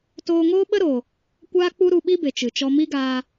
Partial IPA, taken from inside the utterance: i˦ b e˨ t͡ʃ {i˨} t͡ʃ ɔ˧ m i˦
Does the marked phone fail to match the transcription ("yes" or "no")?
yes